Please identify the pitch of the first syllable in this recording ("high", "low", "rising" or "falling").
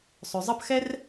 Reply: low